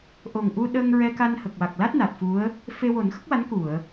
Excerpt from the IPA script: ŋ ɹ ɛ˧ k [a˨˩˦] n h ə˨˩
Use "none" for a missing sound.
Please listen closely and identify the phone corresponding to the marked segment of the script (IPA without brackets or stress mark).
a˧